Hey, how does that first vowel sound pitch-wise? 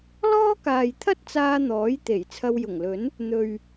high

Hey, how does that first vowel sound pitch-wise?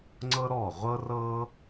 high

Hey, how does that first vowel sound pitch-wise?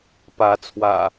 rising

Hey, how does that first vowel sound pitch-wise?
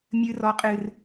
high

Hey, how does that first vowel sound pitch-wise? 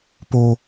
high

